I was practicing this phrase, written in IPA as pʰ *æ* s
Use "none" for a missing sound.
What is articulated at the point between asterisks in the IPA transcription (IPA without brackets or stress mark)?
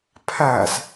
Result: æ